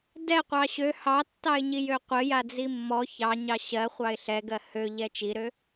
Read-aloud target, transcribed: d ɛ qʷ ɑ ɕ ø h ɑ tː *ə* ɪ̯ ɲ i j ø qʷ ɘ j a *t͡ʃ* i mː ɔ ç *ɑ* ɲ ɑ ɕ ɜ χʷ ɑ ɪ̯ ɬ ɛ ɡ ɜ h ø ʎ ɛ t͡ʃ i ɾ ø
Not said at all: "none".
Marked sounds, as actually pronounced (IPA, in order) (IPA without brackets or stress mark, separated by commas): ɑ, d͡z, ɑ